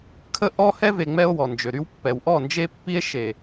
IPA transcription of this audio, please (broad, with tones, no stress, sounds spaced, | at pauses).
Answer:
kʰ ə˦ ʔ ɔ˦ h ɛ˦ v e˨ ŋ͡m ɛ˦ o̯ w ɔ˨ n d͡ʒ ø˨ ɾ y˦ w pː ɛ˨ w ʔ ɔ˦˨ n d͡ʒ e˦ pː i˦ e̯ ʃ e˨